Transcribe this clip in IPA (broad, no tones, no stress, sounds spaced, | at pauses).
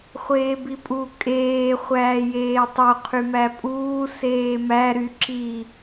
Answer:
χʷ eː b i pʼ u kʼ eː χʷ æː j eː tˤ o qʰ y m æ pʼ uː s eː m æ ɾ y ǁ i